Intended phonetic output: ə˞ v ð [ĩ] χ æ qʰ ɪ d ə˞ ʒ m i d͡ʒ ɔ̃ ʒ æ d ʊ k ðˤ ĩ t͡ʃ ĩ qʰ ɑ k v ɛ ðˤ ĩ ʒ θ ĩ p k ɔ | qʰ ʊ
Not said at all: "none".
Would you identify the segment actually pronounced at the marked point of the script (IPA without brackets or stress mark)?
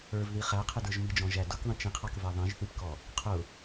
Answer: i